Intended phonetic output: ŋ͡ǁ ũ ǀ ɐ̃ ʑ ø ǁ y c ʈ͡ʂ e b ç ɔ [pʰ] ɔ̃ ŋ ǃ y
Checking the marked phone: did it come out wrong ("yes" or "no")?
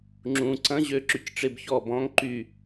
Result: yes